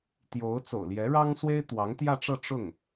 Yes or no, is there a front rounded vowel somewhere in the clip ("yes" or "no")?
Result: no